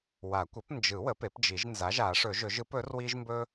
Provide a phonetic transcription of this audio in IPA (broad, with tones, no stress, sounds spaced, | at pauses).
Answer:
w a˨˩˦ kʷ ə˩˥ p n d͡ʒ ɯ˨˩˦ w ə˩˥ p e˩˥ p d͡ʒ i˨˩˦ ʒ n z a˩˥ ʒ a˨˩˦ ʂ ɵ˨˩˦ ʒ ɵ˨˩˦ ʒ ɯ˩˥ p ɵ˩˥ r w i˦ ʒ m b ɵ˦